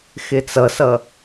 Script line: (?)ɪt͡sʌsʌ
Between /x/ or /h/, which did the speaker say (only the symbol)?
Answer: x